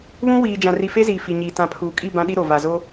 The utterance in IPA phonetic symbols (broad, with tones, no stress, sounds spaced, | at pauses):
β ũ˦ w iː˨ d͡ʒ ã˨ r i˨ f e˦ z iː˨ f i˨ ɲ iː˨ t ã˨ pʰ uː˨ kʼ i˦˨ b ã˦ ɗ i˦ ɾ o˨ v a˨ z o˦